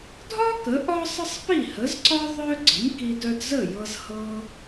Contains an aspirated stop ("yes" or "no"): no